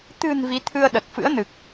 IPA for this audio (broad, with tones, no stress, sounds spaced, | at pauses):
t̪ ɨ̤˨˩ n v i˨˦ t̪ʰ ɨ˧ ə̯ ɗ ə˨˩ t̚ f ɨ̰˧˥ ə̯ n ɨ˨˩ k̚